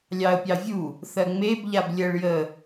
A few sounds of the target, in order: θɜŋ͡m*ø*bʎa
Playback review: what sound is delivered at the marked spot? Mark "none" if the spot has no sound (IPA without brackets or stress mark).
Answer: e